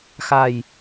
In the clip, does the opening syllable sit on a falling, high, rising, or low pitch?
low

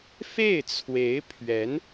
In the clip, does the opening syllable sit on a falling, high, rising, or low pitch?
falling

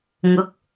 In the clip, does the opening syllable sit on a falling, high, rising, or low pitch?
rising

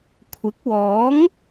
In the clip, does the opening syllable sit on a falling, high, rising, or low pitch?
rising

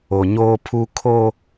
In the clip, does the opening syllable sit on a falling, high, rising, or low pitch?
low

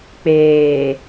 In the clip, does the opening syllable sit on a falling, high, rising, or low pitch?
low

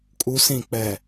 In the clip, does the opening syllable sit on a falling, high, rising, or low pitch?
low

